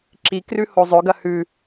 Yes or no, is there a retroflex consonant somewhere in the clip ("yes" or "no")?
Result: no